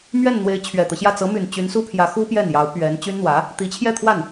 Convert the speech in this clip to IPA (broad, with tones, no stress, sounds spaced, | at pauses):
m ɥ ɛ˥˩ n n̪ w e˧˥ ɪ̯ t͡ɕʰ ɥ ɛ˨˩ t̪ ɤ˦ ɕ j ä˥˩ t͡s ɤ˧˥ m y˨˩ n t͡ɕ y˧˥ n s u˥ pʰ j ä˧˥ x u˥ p j ɛ˥˩ n j ɑ˧˥ ʊ̯ p ɥ ɛ˧˥ n t͡ɕ y˥ n n̪ w ä˧˥ | t̪ i˧˥ t͡ɕʰ j ɛ˥˧ t̪ʰ w a˥˩ n